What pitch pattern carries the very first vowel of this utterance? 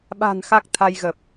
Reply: low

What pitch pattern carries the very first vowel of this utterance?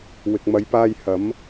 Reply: low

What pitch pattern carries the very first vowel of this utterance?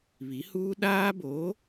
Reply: rising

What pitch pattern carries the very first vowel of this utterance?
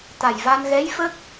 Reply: low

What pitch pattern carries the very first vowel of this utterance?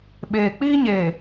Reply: low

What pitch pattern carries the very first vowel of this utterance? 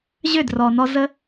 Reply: falling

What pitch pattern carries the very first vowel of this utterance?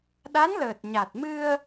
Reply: rising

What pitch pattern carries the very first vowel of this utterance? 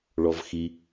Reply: low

